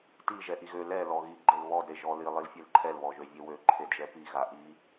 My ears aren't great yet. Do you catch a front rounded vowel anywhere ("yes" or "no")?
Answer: yes